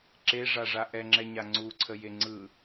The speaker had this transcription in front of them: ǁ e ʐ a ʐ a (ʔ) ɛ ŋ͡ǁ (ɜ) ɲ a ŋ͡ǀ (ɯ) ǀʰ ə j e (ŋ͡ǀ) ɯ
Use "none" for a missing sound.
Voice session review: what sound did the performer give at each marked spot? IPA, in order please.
ʔ, ɛ, u, ŋ͡ǀ

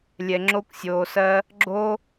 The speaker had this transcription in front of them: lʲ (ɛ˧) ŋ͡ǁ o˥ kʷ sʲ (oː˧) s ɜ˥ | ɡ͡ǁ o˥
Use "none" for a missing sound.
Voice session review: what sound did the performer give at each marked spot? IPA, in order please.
ɛ˧, oː˧

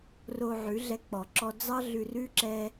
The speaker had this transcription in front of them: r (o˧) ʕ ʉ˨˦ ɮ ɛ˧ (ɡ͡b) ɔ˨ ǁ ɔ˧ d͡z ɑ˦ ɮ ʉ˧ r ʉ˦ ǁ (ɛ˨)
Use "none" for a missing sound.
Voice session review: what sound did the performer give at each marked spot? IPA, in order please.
o˧, k͡p, ɛ˧

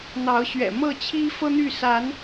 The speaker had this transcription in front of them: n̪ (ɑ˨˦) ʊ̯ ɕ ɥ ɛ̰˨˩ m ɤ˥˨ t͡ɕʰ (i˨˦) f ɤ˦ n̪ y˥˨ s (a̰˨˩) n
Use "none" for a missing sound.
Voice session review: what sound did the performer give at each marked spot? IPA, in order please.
ɑ˨˦, i˦, a˨˦

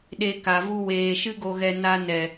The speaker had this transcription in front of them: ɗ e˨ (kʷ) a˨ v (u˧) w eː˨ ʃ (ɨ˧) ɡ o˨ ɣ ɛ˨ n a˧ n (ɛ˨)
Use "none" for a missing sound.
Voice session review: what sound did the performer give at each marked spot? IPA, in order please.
k, u˧, ɨ˧, ɛ˨

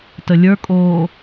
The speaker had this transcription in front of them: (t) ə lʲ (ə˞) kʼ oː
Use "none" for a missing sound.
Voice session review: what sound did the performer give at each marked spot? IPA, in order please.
t, ə˞

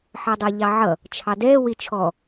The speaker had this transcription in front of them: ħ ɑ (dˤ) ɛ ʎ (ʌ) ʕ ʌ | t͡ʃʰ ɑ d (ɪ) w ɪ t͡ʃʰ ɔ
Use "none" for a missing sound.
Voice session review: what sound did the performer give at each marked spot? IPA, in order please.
dˤ, ɑ, ɛ

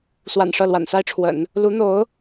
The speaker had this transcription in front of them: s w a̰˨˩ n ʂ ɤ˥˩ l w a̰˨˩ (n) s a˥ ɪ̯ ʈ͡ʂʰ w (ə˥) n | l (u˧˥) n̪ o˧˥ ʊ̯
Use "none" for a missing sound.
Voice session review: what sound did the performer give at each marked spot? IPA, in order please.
n, ə̰˨˩˦, u˧˥

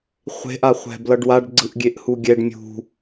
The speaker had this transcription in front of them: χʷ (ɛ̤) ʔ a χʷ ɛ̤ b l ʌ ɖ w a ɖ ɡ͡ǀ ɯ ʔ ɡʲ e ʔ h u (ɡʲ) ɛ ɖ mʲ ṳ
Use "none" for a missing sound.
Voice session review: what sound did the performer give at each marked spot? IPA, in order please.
e̤, ɡʲ

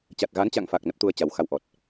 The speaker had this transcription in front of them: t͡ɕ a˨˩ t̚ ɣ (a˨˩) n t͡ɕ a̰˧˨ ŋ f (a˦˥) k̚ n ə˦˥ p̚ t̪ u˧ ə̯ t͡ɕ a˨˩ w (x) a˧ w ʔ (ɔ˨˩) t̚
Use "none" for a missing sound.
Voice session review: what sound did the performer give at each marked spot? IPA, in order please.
a˨˦, a˨˩, x, ɔ˨˩

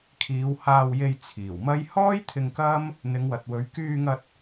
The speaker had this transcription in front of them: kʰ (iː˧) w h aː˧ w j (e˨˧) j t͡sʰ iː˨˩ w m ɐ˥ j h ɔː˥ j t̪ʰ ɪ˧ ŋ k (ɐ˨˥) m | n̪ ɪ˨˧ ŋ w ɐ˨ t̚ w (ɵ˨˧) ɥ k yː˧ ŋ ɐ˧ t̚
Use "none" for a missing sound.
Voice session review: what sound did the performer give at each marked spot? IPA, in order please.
iː˨˧, e˧, ɐ˥, ɵ˨˧

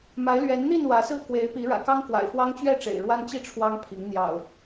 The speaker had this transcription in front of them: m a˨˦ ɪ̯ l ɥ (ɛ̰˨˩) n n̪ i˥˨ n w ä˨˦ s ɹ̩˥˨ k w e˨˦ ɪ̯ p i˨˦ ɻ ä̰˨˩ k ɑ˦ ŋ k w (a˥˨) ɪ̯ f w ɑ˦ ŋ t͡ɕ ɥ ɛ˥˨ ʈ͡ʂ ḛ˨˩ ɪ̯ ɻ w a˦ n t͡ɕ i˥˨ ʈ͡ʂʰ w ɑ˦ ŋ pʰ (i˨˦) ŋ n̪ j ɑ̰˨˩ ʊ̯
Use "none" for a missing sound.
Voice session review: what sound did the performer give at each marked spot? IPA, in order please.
ɛ˨˦, a̰˨˩, i˨˦

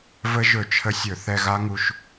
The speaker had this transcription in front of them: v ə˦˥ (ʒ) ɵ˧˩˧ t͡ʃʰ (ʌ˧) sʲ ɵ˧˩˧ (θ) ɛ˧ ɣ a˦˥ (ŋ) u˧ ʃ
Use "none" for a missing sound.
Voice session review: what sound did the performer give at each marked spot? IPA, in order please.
ʒ, ə˧, θ, ŋ

